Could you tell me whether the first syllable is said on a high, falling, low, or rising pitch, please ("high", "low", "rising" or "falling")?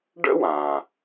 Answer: high